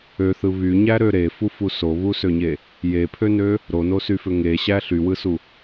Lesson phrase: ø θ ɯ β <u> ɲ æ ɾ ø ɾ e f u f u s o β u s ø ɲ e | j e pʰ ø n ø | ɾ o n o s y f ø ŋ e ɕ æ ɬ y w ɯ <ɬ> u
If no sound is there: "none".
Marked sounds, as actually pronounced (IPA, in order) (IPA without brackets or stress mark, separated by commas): y, s